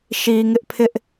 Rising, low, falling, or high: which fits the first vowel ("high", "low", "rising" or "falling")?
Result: low